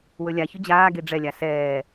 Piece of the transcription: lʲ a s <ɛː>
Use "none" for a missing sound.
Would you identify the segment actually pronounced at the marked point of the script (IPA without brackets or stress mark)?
ɛː